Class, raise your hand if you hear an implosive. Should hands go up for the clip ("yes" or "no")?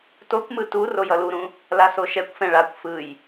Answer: no